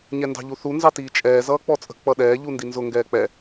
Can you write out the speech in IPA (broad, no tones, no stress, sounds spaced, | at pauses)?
ɲ ɛ n d ɑ̤ ʎ u θ u n z ɑ t iː t͡ʃʼ ɛː z ʌː k͡p ɔ t͡sʼ ə̤ k͡p ʌ ɗ ɛː ʎ u n d i n z ʊ ŋ ɡ ɛː k͡p ɛ